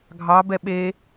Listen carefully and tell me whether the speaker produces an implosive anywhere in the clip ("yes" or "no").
yes